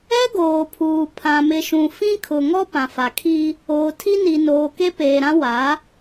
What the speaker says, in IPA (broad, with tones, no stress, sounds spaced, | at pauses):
ɛ˦ ɡ oː˨ pʰ uː˨ pʰ ã˨ m ɪ˨ ʃ ũ˨ f ĩ˦ kʰ ʊ˨ ŋ ɔ˦ p ã˨ f a˨ kʰ i˦ | oː˨ tʰ i˦ n i˨ n oː˨ k e˦ p eː˨ ɾ ã˦ w a˨˦